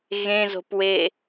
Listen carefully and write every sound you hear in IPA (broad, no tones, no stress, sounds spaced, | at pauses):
ɣ ẽ z o̤ p w e